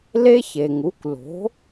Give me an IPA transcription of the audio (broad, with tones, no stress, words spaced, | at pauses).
le˦çe˩ŋu˩˥kʷ lo̤˩˥